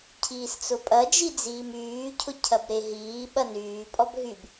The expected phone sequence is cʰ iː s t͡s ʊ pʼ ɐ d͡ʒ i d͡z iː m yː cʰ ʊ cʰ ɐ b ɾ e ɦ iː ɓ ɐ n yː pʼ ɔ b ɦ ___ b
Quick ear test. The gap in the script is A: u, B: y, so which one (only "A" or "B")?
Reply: B